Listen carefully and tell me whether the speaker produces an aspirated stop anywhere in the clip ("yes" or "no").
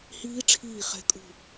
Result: yes